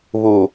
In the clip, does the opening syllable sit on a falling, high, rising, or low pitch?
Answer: low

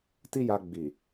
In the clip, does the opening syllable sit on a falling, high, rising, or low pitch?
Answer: high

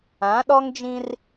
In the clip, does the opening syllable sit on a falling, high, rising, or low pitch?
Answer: rising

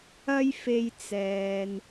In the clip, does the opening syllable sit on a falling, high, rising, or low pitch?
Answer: high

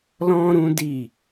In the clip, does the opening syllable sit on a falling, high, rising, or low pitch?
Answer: high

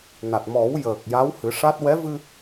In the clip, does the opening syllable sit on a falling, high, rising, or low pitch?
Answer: low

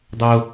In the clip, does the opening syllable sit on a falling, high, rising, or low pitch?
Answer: high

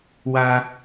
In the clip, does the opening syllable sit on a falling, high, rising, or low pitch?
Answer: high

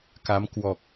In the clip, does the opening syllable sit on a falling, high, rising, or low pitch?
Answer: rising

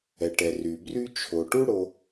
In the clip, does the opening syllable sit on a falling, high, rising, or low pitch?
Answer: low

